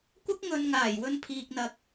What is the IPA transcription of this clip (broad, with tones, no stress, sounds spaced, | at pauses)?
kʷ ɐ˥ k̚ ŋ ɵ˨ n ŋ aː˨˩ j w ɵ˧ n pʰ iː˨ k̚ n̪ ɐ˨ k̚